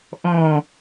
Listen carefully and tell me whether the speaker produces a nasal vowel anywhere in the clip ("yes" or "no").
yes